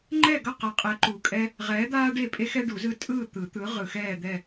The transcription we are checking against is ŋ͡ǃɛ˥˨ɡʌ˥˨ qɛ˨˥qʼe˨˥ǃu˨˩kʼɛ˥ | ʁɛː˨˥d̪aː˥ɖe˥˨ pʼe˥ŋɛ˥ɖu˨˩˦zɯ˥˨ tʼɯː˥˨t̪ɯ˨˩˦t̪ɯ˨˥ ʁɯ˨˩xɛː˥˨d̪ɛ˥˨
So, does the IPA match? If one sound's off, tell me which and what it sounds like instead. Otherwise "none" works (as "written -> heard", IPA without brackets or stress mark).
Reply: ŋ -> x